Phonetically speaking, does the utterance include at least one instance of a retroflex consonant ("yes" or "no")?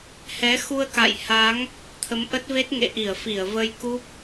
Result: no